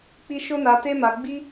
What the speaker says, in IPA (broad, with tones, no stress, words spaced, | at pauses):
k͡pi˧ ʃo˦na˧te˦ma˧ ɡ͡bi˦